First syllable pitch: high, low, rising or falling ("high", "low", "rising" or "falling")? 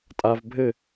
high